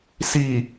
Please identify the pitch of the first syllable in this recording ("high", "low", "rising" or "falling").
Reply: low